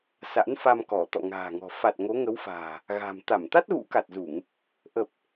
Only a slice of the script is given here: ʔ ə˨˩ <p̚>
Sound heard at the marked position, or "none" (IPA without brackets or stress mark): p̚